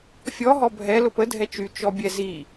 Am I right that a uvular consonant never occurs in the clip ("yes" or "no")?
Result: yes